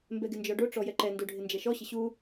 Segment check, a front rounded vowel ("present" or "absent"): absent